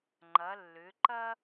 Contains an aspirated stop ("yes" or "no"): no